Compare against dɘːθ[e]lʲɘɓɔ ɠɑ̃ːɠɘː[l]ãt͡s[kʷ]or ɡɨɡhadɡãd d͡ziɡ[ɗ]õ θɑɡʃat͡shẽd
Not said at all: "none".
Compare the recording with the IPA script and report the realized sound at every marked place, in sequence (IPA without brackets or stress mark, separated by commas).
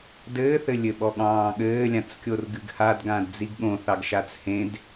ɘ, lʲ, kʲ, ɠ